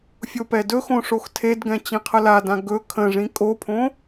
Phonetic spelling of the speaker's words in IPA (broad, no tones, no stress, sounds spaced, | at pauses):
fʲ o p ɛ d ɵ x õ ʂ o x tʰ e d ɡ ɛ̃ t͡ɕ ĩ qʰ ə l a d ã ɡ ɵ kʰ ə̃ ʐ ĩ kʼ o pʰ õ